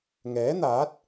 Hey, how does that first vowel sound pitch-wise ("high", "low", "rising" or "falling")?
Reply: rising